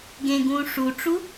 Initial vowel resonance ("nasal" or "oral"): nasal